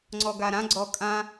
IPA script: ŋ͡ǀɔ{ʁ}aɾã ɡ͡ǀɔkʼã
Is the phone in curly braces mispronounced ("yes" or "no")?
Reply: yes